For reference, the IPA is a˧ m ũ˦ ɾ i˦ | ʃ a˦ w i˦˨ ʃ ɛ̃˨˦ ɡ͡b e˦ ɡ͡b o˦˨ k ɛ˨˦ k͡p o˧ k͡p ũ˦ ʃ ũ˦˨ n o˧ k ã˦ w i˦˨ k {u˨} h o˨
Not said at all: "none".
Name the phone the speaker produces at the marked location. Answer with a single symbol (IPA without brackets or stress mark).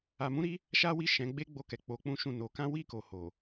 o˨